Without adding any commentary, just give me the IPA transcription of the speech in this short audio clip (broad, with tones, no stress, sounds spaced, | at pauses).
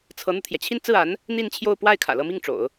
t͡sʰ ɤ˧˥ n̪ u˧ t̪ʰ j ɛ˩ t͡ɕʰ i˥˧ n t͡s ɹ̩˥˩ a˧˥ n | n̪ i˥˧ n t͡ɕʰ j o˥˧ ʊ̯ p w a˥˩ ɪ̯ kʰ ä̰˨˩ l ɤ˥˧ m i˥˩ ŋ ʈ͡ʂ o̰˨˩˦ ʊ̯